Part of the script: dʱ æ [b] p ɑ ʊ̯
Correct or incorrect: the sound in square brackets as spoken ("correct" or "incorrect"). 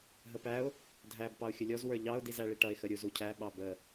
correct